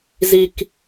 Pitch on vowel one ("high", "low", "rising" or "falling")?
low